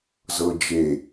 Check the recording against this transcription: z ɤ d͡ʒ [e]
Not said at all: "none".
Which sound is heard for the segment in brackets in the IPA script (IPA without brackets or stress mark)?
e